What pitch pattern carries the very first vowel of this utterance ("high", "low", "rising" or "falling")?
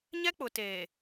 high